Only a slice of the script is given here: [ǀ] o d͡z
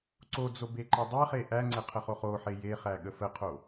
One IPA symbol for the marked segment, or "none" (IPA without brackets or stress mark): ǀ